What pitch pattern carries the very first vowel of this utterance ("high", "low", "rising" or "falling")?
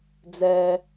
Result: high